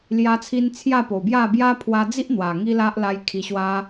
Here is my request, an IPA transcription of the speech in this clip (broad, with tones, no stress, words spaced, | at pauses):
lja˦t͡sʰi˦n t͡sʰja˥˧po˨˩bja˥˧ bja˦pʰwa˧d͡zi˦ʔ n̪wa˨˩ŋi˦la˦ʔla˧j kʰi˨˩ɕwa˧